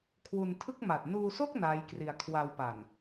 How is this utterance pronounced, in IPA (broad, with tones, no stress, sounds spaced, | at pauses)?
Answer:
kʰ w u˧ n tʰ ɯ˥˩ k̚ m a˨˩ t̚ n uː˧ s o˥˩ k̚ n aː˦˥ j k r i˧ a̯ kʰ w a˧ w p a˨˩ n